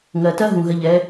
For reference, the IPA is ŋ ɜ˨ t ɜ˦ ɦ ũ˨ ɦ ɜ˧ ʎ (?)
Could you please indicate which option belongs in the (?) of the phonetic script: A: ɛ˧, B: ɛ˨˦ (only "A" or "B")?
B